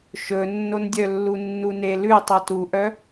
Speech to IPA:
ʃ ɵ nː o n dʲ œ lː u nː u n e l ʉ tˤ œ t u ʔ œ

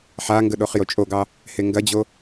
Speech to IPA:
ħ a ŋ ɡ ə ɗ o χ j o t͡ʃʼ o ɡ ɑ | h e ŋ ɡ ɐ d͡ʑ o

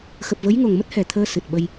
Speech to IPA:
x ə˨˩ p̚ v ə˨˦ j ŋ o˨˩ ŋ m ə˦˥ t̚ h ɛ˨˩ t̪ʰ əː˧ s ɨ˨˩ t̚ ɓ ə˧ j

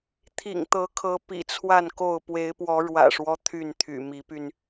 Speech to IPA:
t̪ʰ ḭ˨˩ ŋ t̪ ɤ˨˦ kʰ ɤ˨˦ p ḭ˨˩ t͡sʰ w a˥˨ n k o˥˨ ʊ̯ p w e˨˦ ɪ̯ p w ɔ˨˦ ɻ w ä̰˨˩ ʂ w ɔ˦ t̪ʰ y˥˨ n t̪ʰ y̰˨˩ m i˨˦ p y˧ n

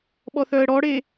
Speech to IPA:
ɓ ɔ θ œ ə̯ ɽ ɔ ɽ e

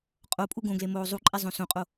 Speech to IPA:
qʼ o pʼ u ɡ õ ɡ l e m oː zˤ u ǃʼ e zˤ õ s õ qʼ o

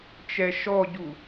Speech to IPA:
t͡ʃ ɛ ʃ ɔ ɟ u

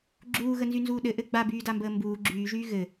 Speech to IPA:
ɡ͡ǁ uː ɣ ə n z y n z uː ɗ ɘ ʔ ɘ ɡ͡b a b yː d a m b əː m b uː ɡ͡ǁ yː ʒ yː ɣ ɘ

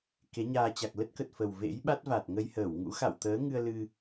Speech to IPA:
k e˨˦ ɲ aː˧ t͡ɕ a˨˩ k̚ l ə˦˥ t̚ k ə˨˩ t̚ f ə˨˩ w v ḛ˧˥ j ɓ a˦˥ t̚ v a˨˩ t̚ ŋ ə˧ j h əː˧˩ w ŋ ṵ˧˥ x a̰˧˨ w t̪ əː˨˦ ŋ ɨ˧ ə̯ l ɨ˧

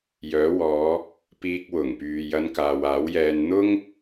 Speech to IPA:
j œː˨˥ w ɔː˨˧ | p iː˧ k̚ w ʊ˨˩ ŋ p yː˨ j ɐ˧ n k aː˨ w aː˨˥ w j ɛː˧ n n̪ ʊ˥ ŋ

